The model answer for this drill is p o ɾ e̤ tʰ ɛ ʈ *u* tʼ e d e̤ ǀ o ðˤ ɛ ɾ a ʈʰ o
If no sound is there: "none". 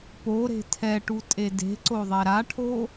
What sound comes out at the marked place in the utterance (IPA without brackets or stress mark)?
u